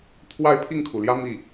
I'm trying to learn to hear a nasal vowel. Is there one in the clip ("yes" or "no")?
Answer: no